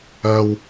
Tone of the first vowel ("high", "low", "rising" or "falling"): high